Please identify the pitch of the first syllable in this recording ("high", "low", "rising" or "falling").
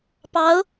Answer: rising